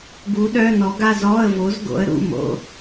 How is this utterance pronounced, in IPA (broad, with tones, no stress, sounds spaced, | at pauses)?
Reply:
ɡ u˨˥ ɗ œ˧˥˧ n ɔ˨˥ ɡ a˧˥˧ z ɔ˧˥˧ ə̯ v o˨˥ z ɡ o̰˨˥ ə̯ ɾ ṵ˧˥˧ m o̰˨˥